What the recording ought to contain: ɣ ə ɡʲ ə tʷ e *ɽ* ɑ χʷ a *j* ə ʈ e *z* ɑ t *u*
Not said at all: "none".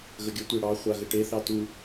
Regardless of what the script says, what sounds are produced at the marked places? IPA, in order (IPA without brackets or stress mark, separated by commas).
ɽ, ɣ, θ, u